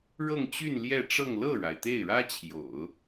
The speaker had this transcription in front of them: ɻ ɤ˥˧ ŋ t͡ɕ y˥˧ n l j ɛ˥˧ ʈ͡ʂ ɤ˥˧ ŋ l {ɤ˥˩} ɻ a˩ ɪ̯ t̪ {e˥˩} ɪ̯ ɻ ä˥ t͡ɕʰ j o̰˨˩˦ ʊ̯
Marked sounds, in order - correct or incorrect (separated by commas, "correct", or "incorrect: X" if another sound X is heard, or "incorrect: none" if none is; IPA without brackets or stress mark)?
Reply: correct, correct